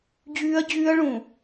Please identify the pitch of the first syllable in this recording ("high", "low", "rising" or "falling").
high